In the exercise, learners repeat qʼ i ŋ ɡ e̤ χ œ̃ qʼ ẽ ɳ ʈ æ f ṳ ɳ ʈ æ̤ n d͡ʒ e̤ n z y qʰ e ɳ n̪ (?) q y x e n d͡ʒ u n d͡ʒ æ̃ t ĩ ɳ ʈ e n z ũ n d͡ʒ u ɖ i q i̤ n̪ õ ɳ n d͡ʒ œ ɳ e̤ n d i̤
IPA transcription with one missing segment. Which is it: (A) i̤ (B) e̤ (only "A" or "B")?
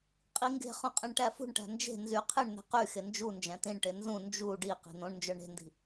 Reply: B